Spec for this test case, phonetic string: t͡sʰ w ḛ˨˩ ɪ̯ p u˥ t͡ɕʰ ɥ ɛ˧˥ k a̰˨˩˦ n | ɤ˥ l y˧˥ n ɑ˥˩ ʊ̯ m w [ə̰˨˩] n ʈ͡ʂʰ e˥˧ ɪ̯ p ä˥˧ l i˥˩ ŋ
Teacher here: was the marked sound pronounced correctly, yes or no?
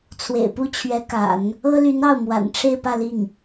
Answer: no